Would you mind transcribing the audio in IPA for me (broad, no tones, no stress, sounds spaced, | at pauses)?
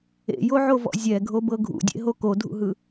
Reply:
ḛ j o ʕ o v ɔ̰ zʲ ɛ ɡʱ o b ɤ ɡʱ ṵ dʲ ḛ ɦ o k o dʱ ṵ ɦ ɯ